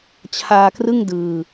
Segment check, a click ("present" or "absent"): absent